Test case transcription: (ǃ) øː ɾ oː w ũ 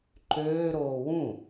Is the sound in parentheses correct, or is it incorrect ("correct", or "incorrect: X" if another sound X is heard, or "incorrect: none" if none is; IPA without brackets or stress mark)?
correct